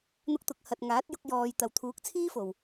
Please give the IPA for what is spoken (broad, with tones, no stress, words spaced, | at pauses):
n̪ʊ˧k̚t̪ʊ˨k̚ hɐ˨t̚ŋaː˨˥t̚jʊ˧k̚ jɔː˨j t̪ɐ˨wt̪ʰuː˨˥k̚t͡sʰiː˥fo˨w